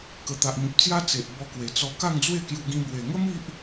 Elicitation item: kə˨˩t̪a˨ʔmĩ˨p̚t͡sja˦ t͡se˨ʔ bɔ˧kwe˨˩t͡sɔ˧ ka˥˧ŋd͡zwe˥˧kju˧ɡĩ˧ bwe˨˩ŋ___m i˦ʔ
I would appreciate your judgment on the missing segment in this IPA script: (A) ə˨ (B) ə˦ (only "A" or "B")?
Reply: B